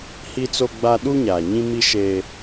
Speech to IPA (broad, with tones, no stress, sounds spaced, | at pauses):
h i˦ t͡s o˦ ɡ͡b a˦ ɗ uː˦ ɲ aː˨ ɲ ĩ˦ m i˦ ʃ e˦